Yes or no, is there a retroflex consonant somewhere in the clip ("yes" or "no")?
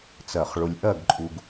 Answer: yes